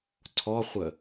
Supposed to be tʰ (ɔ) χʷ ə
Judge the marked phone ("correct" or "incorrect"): correct